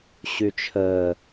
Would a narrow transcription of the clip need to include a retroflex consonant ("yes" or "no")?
no